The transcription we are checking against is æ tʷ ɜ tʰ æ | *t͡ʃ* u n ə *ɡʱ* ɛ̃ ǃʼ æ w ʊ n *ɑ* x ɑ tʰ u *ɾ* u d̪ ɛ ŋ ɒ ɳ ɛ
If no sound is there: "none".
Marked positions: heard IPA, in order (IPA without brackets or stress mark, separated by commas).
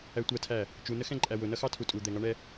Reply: t͡ʃ, x, ʌ, tʼ